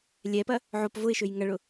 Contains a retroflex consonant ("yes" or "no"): yes